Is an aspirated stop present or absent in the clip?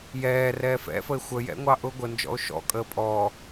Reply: absent